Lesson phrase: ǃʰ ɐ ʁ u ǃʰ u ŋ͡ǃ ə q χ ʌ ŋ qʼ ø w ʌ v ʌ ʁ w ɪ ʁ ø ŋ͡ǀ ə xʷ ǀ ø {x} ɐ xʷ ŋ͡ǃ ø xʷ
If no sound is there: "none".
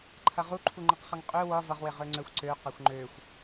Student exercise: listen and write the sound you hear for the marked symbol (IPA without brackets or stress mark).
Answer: q